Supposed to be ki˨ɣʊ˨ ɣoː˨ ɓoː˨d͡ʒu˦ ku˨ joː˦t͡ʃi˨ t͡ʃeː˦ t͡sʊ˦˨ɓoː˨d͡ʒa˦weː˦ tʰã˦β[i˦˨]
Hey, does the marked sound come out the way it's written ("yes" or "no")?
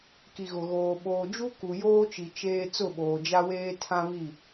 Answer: yes